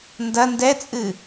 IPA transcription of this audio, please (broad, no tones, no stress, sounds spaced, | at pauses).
n d ɐ n d ɛ t͡sʼ ɨ